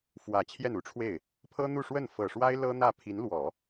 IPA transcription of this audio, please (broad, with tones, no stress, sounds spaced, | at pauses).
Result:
f w ä˨˩ t͡ɕʰ j ɛ˥˩ n u˥ ʈ͡ʂʰ w e˥˩ ɪ̯ | pʰ ɤ˥ n̪ u˥˧ ʂ w ə˥˩ n f ɤ˨˩ ʂ w a˥ ɪ̯ l ɤ˥ n̪ ä˥˩ pʰ i˧˥ n l w ɔ˨˩˦